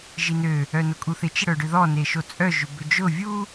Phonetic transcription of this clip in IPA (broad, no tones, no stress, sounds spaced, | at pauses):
ʒ i n ø | œ n ʊ kʼ u θ ɪ t͡ʃ ɪ ɽ œ ɖ ʏ ð ɔ n e ʃ o t͡sʼ œ ʒ ʏ b ʏ d͡ʒ ʊ vʲ u